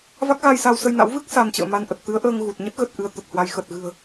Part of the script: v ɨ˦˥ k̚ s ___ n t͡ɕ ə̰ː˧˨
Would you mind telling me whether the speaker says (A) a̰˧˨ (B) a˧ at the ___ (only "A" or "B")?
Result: B